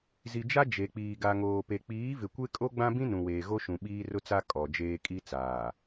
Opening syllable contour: low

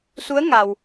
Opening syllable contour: rising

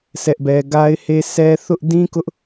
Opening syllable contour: high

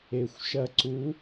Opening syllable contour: low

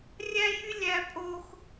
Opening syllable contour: high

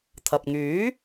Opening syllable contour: low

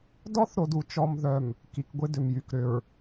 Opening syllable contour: high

